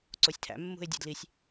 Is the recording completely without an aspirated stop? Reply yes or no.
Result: no